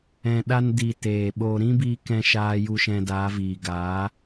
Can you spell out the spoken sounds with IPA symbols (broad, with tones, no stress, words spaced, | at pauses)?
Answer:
ɛ̃˨ ɗa˧ndi˨ teː˨ɓoː˧ ɾĩ˦biː˧kɛ̃˧ ʃaː˧ju˧ ʃɛ̃˧daː˨˦viː˨ ɡa˨˦